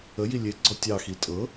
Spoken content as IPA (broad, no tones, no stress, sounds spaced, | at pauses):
ə j i lʲ e ɡ͡ǀ ɔ tʲ ɑ x i tʼ ɤ